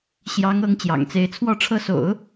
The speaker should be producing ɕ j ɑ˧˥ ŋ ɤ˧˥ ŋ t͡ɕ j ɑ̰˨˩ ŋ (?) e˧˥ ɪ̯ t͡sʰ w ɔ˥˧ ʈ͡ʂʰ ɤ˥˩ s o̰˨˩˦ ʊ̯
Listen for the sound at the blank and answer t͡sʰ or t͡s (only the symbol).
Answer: t͡s